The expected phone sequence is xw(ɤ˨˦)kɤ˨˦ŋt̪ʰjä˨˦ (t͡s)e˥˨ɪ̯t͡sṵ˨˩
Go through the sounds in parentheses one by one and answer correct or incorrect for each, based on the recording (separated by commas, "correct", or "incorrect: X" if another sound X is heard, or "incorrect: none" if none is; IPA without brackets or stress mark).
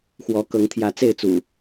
incorrect: ɔ˨˦, correct